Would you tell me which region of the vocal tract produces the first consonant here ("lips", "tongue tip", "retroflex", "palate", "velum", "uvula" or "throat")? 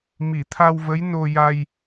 lips